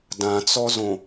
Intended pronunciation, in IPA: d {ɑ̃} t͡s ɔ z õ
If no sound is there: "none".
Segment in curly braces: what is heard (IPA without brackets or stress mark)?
ã